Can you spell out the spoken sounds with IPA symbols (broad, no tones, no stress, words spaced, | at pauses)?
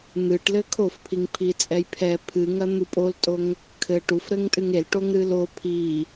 n̪ɨʈ lɘkʰofpʰiŋ pʰit͡sʼɛjpʰɛ pʰɨŋɐ n̪upʼoltʼoŋ | kʰɘ ʈufɾɘŋtʼɨŋ el ʈoŋɾɨlo pʰi